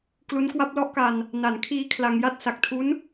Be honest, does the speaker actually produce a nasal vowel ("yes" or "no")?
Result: no